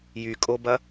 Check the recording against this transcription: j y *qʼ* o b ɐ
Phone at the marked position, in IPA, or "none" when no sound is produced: kʼ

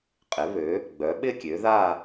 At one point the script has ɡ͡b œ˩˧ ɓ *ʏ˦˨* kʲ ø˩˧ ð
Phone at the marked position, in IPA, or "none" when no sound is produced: ɪ˦˨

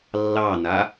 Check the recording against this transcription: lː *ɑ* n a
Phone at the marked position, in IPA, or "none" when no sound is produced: ɑ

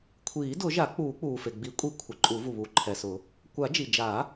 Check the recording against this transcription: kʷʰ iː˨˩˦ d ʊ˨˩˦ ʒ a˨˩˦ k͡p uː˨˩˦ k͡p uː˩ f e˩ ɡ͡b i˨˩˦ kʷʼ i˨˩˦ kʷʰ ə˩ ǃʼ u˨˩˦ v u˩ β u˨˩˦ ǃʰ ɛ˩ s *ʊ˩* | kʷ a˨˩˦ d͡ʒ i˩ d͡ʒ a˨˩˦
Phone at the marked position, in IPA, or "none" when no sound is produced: ʊ˨˩˦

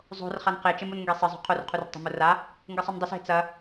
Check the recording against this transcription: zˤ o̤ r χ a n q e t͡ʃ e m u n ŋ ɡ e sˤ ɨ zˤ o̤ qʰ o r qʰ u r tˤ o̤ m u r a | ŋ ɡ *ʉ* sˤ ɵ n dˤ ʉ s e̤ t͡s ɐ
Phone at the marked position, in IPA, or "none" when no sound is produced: ɨ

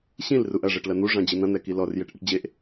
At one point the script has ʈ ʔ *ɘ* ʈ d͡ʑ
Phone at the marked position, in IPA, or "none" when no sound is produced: ɘ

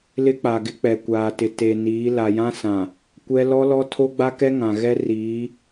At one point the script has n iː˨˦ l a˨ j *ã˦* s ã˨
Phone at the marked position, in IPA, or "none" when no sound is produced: ã˦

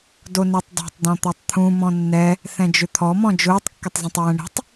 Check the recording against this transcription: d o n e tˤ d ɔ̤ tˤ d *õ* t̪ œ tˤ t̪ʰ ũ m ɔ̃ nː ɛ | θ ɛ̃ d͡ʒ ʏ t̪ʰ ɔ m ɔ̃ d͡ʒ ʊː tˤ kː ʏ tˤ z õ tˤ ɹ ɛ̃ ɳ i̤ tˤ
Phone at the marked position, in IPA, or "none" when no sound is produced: ɔ̃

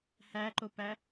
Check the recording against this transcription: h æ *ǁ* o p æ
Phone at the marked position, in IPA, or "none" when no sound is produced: ǃ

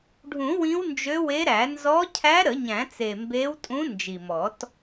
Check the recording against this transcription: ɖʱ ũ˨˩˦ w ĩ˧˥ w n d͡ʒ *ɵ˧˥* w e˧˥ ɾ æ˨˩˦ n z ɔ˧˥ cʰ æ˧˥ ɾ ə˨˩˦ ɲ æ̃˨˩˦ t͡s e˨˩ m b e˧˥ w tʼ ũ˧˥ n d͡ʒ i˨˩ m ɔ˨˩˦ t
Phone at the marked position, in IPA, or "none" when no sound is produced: ø˧˥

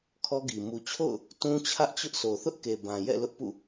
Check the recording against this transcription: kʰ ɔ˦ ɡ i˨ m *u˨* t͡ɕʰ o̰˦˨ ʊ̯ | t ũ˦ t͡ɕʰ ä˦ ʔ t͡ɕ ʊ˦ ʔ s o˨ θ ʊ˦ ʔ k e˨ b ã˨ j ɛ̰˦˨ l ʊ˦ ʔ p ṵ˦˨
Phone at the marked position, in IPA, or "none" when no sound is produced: u˨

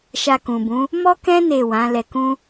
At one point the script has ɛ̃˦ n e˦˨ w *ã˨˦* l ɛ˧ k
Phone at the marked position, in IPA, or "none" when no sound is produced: ã˨˦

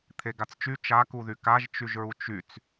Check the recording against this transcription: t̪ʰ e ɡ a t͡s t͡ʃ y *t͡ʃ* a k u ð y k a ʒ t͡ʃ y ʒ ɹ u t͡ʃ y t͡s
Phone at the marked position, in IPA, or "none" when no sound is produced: t͡ʃ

